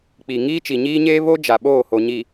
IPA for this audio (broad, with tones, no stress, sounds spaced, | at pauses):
k͡p i˨ ŋ iː˦ t͡ʃ i˨ ɲ iː˦ ɲ eː˦ β o˦ d͡ʒ a˨ ɓ oː˦˨ h o˨ ɲ i˨